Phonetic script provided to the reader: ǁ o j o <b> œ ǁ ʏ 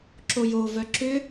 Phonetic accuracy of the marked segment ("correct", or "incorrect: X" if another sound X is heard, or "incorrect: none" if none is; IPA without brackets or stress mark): incorrect: v